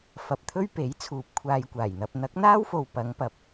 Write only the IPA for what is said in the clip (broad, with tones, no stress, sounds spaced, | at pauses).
f ɐ˨ p̚ t̪ʰ ɵ˥ ɥ p e˨˥ j t͡sʰ uː˨ p̚ kʷʰ aː˧ j kʷ aː˨˩ j n̪ ɐ˧ p̚ n̪ ɐ˨˥ k̚ n̪ aː˥ w f o˨ w p ɐ˨˧ ŋ p ɐ˨ p̚